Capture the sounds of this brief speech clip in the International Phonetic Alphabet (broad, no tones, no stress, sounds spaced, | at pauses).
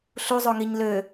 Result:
ɬ u zˤ o ŋ i ɲ l ø